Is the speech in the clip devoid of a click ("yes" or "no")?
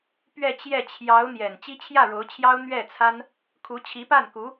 yes